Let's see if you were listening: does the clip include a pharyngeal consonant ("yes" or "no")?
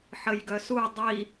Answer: yes